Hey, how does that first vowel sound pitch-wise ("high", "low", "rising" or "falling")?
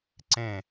falling